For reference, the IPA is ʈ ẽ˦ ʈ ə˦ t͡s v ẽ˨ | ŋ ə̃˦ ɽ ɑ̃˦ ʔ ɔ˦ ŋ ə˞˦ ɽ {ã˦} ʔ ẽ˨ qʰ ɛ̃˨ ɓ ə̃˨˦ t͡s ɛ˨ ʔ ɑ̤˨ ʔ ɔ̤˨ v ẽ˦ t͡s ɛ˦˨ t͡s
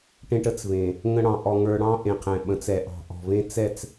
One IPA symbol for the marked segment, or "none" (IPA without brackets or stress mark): ɑ̃˦